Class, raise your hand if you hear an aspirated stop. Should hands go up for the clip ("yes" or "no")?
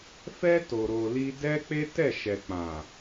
no